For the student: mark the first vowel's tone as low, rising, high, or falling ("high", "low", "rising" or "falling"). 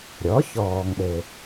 rising